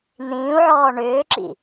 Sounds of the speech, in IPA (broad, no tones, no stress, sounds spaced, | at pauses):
n̪ ĩː u̯ ʕ ɔː ɳ ʏː ǁ ḭ